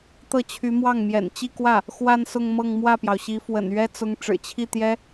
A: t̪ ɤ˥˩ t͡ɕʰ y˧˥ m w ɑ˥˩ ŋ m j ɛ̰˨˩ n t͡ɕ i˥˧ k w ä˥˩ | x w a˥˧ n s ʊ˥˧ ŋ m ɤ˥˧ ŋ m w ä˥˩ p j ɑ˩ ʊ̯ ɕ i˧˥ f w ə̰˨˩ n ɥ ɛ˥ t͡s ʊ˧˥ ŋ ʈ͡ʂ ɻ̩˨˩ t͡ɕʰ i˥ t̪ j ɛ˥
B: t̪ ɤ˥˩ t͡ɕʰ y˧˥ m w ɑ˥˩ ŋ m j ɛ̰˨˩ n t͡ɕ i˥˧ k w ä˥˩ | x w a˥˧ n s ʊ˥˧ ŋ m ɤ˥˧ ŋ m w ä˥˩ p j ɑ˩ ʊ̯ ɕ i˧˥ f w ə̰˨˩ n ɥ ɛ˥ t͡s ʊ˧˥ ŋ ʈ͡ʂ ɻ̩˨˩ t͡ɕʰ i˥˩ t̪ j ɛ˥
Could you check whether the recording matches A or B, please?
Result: B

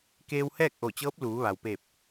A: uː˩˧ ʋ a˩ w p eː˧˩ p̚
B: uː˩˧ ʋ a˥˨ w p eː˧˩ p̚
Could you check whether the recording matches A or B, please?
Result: A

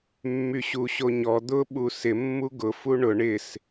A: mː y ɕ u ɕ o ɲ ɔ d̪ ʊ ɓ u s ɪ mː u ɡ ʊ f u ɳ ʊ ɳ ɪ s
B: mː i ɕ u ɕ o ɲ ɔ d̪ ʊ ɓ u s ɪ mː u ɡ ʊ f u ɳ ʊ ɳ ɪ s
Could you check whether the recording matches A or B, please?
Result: A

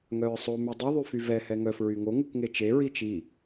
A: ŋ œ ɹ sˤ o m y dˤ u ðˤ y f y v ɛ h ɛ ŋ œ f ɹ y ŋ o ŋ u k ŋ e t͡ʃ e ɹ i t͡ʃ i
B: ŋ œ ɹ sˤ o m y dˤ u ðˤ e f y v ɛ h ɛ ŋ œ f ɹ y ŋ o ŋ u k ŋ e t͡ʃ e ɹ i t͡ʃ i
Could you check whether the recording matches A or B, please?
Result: A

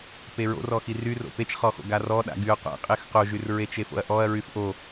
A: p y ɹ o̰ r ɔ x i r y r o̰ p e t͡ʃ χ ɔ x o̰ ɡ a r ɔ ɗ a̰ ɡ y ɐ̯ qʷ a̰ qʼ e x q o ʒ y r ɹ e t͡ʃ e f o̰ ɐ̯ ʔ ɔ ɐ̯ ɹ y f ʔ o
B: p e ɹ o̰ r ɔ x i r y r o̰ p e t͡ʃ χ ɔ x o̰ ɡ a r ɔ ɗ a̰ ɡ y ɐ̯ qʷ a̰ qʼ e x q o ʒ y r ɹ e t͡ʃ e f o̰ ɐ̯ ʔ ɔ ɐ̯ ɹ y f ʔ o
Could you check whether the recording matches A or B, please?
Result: B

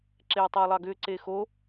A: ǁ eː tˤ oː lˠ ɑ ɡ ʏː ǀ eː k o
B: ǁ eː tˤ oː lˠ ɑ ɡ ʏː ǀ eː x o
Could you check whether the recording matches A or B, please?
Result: B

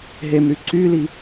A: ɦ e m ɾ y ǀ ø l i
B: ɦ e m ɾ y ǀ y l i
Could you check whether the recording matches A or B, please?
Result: B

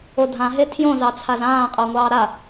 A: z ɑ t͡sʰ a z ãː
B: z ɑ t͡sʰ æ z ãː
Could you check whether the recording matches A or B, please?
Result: A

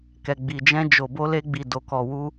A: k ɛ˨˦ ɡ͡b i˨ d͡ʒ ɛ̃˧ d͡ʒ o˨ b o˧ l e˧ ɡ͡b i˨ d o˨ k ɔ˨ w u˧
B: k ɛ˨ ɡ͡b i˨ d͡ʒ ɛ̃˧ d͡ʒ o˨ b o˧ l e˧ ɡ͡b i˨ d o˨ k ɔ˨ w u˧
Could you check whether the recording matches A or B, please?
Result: B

